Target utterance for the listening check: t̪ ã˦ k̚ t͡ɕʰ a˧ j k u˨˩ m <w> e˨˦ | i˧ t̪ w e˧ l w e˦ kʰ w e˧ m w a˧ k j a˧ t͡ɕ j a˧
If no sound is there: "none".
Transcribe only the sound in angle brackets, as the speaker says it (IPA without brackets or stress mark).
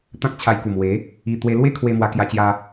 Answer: w